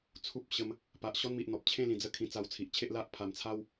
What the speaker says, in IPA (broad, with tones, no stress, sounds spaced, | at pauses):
t͡sʰ u˦ p̚ ɕ ə˧ m | p a˨ ʔ ɕ ɔ˦ n m i˨ ʔ n̪ ɔ˨ p̚ t͡ɕʰ ẽ˥˧ l ĩ˨˩ d͡z ə˦ kʰ ĩ˧ t͡s a˧ w t͡sʰ i˨ ʔ t͡ɕʰ e˦ ʔ l a˦ ʔ pʰ a˨˩ m t͡sʰ a˦ w